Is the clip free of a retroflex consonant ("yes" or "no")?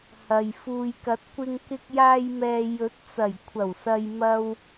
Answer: yes